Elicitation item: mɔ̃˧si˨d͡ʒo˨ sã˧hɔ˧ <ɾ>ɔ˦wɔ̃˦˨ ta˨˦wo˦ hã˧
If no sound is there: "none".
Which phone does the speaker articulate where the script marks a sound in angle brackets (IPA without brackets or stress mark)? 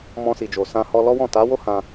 l